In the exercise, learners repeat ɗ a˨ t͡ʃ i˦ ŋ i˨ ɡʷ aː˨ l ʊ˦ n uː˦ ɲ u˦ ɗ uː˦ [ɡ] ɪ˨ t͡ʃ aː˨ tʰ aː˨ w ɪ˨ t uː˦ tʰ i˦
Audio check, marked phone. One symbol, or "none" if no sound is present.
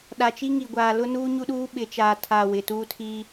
ɓ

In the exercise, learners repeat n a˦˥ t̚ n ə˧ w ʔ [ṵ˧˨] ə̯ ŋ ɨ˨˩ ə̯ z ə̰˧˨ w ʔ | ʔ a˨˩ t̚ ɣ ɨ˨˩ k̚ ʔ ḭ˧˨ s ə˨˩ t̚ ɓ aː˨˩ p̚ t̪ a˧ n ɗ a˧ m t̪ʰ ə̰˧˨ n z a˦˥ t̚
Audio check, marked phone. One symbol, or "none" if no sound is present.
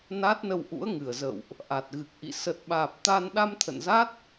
ṵ˧˥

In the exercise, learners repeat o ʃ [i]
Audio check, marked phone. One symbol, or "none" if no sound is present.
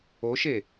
e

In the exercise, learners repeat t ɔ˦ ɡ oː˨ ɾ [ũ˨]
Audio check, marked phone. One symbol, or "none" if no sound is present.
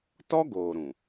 ũ˨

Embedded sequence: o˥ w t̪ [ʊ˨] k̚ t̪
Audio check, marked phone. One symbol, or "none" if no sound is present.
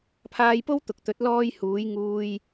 ʊ˨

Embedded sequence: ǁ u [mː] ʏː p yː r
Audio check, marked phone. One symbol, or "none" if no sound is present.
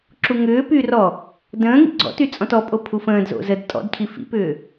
ŋ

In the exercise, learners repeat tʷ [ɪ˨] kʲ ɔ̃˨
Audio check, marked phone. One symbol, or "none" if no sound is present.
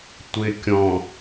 ɪ˨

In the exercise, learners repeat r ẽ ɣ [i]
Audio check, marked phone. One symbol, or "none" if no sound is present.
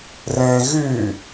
y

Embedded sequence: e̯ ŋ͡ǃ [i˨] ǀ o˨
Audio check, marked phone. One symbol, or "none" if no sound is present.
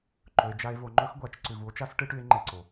e˨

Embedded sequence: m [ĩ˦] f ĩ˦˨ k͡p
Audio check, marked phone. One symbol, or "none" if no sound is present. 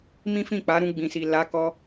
ĩ˦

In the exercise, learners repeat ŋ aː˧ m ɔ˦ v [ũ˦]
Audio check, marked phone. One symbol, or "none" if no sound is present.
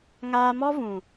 ũ˨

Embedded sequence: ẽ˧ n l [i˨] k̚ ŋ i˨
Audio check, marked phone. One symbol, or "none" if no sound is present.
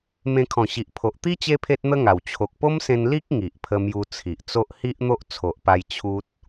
i˦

